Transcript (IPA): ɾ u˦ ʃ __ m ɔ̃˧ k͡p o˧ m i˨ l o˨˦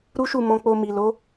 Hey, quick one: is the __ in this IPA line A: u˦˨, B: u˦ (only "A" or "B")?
A